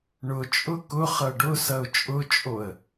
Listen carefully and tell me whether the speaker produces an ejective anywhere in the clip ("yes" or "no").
yes